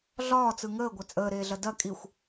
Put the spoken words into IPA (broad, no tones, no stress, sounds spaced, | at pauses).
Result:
ɮ ɒː t͡s ɯ ŋ əː ɡʷ ɐ t͡sʼ əː ɾ eː ɮ ɐ d ɐ kʼ i xʷ